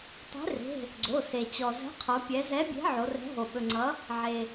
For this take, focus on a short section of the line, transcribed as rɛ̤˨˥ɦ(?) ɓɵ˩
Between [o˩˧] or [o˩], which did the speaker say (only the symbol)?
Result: o˩